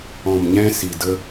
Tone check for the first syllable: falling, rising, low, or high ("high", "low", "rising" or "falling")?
low